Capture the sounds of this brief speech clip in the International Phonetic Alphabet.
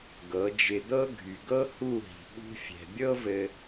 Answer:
ɡɤ˨˦d͡ʒɪ˧d̪ɤ˦ ɡʱy˨ɡɤ˦hu˦˨ɦi̤˨ ɠṳ˧fʲɛ̤˨bʲɤ˦vɘ˧

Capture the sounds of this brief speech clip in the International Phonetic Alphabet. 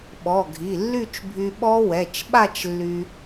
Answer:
ɓɔ˩˧˩ɡʱi˩˧˩lːy˥˧t͡ʃbʱy˧ ɓɔ˦˥ wɛ˩˧˩t͡ʃɓa˥˧t͡ʃlːy˧

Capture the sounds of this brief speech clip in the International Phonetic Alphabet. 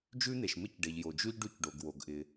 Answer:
d͡ʒʉ˥n̪e˩ʃmɪ˥c ɖe˩ʎjo˩ d͡ʒʉ˥ʎ ɖʉ˥c ɖo˩ɡ wo˩ɡ ʔɪ˩

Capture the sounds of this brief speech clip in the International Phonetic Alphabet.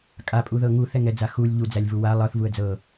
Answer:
kʼapʼuðɤ ŋuθɛŋɛd͡za xulʲ ʎud͡zælʲvu wa lˠɤθvuə̯ d͡zɤ

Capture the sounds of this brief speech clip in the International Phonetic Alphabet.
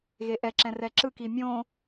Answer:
ɣeʔɛǁɛ̃ rɛǁɯki mʲõ

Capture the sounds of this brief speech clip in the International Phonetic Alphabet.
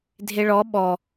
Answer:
dʱeɭɔ ɓɔ

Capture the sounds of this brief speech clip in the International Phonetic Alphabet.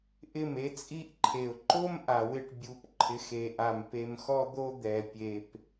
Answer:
ʔɪ˦˨me˦t͡sʼi˦ʔǃʰe˨ʊ̯ ǃo˦m ʔa˨wɪ˦˨ʈ bʲu˨p ǃʰɪ˨˦xe˨ʔa˨m pe˨mxɔ˦d̪o˦ d̪ɛ˨ pʲe˨p

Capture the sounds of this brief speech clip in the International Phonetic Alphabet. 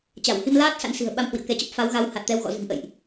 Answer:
t͡ɕa˧˩whi˧mlaː˦˥t̚ sa̰˧˥nsi̤˨˩ə̯ɓa˧m hwḭ˧˨ə̯kɛ˨˦t͡ɕə˦˥p̚ fa˨˦wɣa˨˦w ha˨˩t̚t̪ɛ˧wɣɔ̰˧˨zɨ̤˨˩ŋ ʔə̰˧˨jʔ

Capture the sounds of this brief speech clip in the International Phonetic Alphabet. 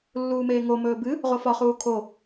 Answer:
lːuːmeːŋomɵː bɨ | ʁofɒχuː kʰo

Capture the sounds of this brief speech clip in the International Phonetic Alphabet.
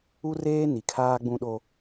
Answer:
u˦reː˦ ni˨kʰaː˦ ɡ͡bũ˦ɗo˦

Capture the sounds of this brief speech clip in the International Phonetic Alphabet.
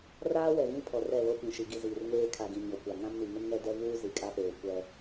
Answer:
raː˦wɛ˨ ɣĩ˦pʰɔ˨rɛ˦˨ βo˦ pĩ˨ʃi˨ɡi˦˨ziː˨r ŋeː˦kʰa˨ɡĩ˨ ɲo˨kʷa˨ ŋã˦mni˨ŋɪ˦n ŋɛ˦ dɛ˦vuː˦ zi˨kʼa˦peː˨ kʷɛ˦

